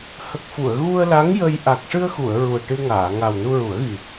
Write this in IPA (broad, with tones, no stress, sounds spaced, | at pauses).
h ə˨˩ k̚ f u˨˩˨ ə̯ ɣ u˧ ə̯ l a˧˥ ŋ j ə˧ j ʔ a˨˩ k̚ ʂ ɨ˧ ə̯ x u˨˩˨ ə̯ ɹ u˨˩ ə̯ ʈ ɨ˧ ŋ aː˨˩˨ ŋ a˨˩ w n u˧ ɹ u˨˩˦ ə̯ ɣ i˨˩